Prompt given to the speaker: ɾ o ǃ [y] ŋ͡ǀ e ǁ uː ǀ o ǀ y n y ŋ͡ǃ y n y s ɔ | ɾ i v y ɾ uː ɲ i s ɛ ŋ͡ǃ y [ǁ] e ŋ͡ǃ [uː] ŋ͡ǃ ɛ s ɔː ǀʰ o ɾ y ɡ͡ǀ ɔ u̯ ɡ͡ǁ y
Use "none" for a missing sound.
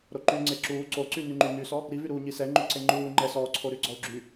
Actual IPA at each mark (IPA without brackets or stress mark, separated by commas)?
y, ǀ, uː